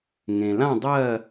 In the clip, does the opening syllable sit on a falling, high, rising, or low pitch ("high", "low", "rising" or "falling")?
low